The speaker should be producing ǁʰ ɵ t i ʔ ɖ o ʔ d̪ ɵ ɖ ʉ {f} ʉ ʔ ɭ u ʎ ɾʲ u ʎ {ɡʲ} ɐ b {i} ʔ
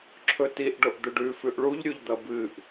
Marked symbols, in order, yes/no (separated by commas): yes, no, no